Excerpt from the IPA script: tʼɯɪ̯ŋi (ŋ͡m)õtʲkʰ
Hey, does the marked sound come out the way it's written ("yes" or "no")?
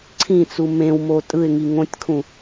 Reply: no